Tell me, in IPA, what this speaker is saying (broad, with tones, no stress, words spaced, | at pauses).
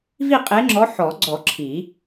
vi˦˨qʼe˨˦ŋ͡ǁɔ˨˦ ħɔ˨˩˦ɡ͡ǀɔ˨˩˦ ǁʰi˨˩˦